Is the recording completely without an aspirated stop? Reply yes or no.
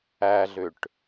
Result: yes